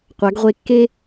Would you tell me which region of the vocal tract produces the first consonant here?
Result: uvula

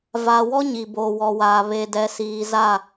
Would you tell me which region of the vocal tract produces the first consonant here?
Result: lips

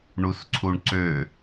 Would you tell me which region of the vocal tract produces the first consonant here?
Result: retroflex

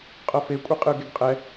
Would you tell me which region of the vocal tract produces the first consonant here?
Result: uvula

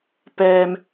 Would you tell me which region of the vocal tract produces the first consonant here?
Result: lips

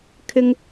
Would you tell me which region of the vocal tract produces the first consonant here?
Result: velum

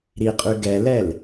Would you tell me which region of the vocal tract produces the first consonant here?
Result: tongue tip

